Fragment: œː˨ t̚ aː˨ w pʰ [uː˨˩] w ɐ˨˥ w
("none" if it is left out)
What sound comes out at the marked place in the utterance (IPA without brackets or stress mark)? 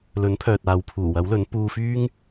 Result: uː˨˩